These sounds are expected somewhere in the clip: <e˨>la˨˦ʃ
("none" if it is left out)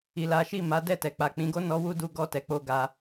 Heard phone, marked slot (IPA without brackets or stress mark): i˨